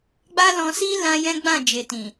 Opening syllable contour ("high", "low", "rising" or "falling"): high